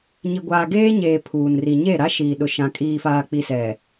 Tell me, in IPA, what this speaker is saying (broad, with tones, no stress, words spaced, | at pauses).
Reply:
ɲi˨ɡʷaː˨ɡeː˦ ɲeː˨ pʰuː˨nri˨ ɲe˦˨ɾa˦ʃiː˨ ɗʊ˨ʃã˨ kʼiː˨faː˨k͡pi˨ sɛ˨